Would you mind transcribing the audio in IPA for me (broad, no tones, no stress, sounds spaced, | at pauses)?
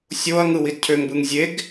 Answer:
sʲ o ɐ̯ ŋ ɯ w i d cʰ ø ŋ b ɯ ŋ zʲ e ɡ